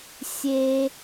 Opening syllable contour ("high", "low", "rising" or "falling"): high